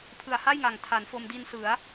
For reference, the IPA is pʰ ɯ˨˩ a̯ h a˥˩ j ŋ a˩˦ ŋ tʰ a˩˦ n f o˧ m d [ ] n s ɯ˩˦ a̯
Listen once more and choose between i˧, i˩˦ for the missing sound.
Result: i˧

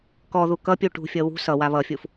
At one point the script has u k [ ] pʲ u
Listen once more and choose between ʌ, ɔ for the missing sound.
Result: ʌ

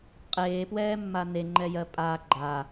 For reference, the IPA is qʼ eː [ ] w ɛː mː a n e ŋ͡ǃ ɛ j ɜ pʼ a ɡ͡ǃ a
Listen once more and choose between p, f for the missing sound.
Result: p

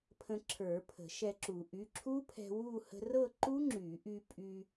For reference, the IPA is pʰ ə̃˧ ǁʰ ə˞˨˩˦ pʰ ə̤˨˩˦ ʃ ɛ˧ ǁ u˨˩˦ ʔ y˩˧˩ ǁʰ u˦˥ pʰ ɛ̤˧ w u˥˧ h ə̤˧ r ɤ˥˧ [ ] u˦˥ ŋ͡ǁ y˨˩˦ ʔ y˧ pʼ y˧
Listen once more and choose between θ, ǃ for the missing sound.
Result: ǃ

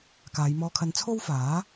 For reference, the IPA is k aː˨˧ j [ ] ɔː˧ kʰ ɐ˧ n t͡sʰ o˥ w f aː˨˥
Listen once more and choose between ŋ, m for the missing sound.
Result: m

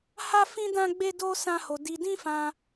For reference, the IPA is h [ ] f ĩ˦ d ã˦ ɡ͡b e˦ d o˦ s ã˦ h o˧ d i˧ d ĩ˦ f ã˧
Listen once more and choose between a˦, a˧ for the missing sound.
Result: a˦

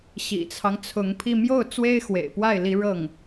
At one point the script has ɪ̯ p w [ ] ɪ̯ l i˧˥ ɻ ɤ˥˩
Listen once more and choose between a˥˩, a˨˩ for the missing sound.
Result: a˥˩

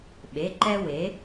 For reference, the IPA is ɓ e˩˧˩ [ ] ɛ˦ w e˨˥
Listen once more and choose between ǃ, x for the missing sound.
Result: ǃ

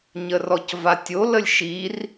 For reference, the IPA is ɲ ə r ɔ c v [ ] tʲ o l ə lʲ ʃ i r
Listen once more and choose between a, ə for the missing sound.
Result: a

